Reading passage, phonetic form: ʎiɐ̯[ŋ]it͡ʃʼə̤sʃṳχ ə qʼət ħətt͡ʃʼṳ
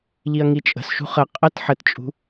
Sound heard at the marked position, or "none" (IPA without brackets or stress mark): ŋ